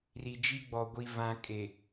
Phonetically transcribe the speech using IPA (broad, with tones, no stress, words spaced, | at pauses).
ri˨d͡ʒi˦ɡ͡bɔ˨ɡʷi˨ vã˨kʼe˨